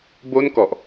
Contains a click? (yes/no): no